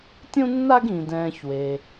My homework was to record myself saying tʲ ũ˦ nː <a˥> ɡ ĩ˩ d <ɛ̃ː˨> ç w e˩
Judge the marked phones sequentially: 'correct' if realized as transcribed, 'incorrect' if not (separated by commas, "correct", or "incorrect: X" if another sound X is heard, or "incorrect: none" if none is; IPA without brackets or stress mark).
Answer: incorrect: a˦, correct